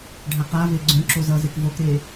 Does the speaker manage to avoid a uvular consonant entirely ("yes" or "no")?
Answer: no